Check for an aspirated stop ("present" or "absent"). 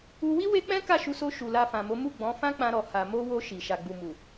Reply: absent